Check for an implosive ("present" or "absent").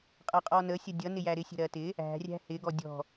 absent